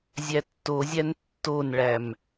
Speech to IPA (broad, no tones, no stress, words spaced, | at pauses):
zʲætːozʲæn tːonɭæm